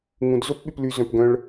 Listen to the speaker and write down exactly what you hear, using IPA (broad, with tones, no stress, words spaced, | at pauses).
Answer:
ŋũ˩d zo˥pɓy˨ply˨ zœ̃˩pɡœ̃˨ɭ